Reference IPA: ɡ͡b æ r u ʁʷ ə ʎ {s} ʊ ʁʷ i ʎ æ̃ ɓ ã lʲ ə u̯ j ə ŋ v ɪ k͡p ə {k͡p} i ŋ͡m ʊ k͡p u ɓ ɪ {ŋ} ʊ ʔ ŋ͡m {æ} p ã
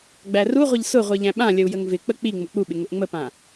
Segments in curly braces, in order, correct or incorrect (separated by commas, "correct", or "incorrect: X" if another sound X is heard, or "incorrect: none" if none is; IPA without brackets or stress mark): correct, correct, correct, incorrect: ə